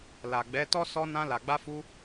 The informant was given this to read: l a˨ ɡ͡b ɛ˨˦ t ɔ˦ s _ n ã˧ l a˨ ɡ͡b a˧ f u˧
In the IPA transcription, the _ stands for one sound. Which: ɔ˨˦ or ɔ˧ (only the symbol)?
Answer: ɔ˧